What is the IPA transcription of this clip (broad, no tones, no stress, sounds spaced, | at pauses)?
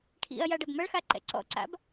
ʈʰ ḭ ɐ̯ j a ɖ ɐ b m ɐ ɭ x a ǃ ɛ̰ ǀ ɔ̰ ǀ a̰ b